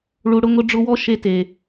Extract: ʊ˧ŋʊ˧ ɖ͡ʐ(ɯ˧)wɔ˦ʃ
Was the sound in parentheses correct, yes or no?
no